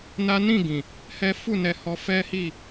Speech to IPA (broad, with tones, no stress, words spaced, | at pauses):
na˦ nĩ˦˨ɡĩ˨ | hɛ˦ fu˦˨nɛ˧ hɔ˧ fɛ˦ hi˦˨